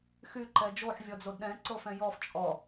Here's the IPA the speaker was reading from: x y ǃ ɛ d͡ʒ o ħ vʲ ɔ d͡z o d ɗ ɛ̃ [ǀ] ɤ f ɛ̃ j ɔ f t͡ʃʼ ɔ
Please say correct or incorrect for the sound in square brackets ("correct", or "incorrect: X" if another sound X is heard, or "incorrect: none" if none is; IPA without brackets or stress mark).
correct